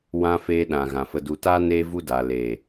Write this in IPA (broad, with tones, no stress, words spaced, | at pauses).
wã˧ feː˧ɗã˨ɣã˨ fə˨du˨taː˧ neː˧vu˧ daː˨ leː˨